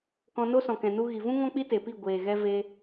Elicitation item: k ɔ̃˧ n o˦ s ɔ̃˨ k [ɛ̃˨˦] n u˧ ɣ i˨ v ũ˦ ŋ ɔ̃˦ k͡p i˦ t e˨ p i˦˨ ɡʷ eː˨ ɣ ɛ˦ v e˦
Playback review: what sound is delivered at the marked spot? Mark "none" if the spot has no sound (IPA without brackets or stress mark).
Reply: ɛ̃˨